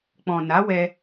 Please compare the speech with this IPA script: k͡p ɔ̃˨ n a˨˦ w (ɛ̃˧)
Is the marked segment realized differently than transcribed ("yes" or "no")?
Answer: yes